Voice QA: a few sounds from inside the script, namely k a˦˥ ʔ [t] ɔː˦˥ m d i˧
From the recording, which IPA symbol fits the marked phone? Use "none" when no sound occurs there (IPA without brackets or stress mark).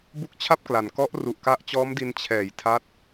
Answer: t͡ɕ